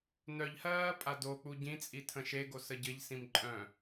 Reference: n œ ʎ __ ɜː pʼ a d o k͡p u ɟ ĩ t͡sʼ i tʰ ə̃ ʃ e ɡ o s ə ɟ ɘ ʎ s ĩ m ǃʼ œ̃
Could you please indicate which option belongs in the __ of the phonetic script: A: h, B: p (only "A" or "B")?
A